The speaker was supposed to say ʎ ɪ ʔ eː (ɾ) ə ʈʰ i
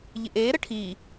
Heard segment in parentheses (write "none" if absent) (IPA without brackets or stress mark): ɾ